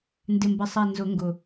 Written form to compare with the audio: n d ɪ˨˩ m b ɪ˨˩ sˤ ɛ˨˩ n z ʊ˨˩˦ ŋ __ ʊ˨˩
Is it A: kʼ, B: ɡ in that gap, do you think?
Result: B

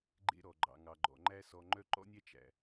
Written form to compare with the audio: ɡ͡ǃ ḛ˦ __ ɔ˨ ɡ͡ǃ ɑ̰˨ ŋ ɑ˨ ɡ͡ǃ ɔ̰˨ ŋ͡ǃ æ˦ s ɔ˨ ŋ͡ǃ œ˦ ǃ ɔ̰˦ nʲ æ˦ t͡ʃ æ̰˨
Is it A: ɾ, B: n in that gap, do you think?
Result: A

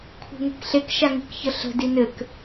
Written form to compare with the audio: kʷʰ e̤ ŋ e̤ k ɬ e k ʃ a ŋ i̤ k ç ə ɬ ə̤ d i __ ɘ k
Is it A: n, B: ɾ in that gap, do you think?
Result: A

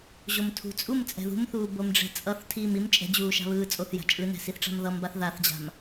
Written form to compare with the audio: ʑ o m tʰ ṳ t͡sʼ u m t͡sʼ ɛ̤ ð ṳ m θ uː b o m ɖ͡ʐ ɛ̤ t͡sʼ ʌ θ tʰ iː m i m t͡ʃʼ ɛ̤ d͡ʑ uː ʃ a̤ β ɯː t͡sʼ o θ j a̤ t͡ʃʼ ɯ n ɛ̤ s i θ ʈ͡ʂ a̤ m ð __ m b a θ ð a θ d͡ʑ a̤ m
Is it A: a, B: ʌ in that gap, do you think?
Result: B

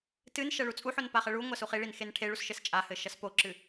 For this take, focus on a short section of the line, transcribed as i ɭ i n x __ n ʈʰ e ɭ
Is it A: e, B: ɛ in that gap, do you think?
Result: A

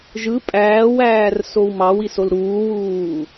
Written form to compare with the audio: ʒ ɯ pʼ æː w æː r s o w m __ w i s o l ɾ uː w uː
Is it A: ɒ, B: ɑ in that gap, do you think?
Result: B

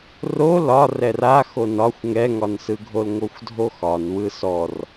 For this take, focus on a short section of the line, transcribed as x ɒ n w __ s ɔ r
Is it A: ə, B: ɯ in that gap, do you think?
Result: B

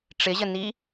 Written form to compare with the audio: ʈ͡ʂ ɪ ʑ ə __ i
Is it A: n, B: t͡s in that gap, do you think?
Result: A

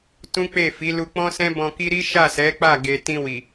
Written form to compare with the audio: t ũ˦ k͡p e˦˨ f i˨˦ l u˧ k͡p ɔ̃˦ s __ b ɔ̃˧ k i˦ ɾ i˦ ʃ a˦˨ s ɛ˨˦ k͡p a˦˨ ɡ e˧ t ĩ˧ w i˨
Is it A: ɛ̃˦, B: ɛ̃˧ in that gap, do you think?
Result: A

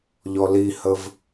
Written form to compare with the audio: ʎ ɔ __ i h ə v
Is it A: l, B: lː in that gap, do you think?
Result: A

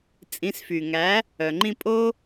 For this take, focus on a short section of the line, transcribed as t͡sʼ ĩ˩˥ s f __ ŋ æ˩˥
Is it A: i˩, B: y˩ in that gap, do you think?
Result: B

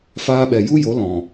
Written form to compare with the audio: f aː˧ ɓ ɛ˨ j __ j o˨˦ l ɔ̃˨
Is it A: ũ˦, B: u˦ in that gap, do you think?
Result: B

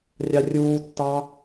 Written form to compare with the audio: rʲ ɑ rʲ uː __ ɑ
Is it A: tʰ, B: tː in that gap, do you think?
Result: B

